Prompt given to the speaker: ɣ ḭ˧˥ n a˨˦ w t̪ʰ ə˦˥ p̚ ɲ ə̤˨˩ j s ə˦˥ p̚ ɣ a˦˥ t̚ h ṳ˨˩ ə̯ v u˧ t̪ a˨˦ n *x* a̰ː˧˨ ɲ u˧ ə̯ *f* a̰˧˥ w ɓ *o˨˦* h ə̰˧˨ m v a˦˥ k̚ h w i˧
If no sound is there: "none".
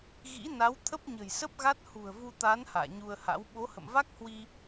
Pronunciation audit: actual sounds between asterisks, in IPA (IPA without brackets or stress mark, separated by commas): h, h, o˨˦